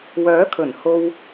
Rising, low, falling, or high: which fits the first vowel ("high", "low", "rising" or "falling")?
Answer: rising